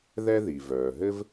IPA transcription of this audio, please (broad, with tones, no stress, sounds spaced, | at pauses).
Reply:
ð ɛ˥ ð i˩ v œː˩ ɦ ɘ˥ v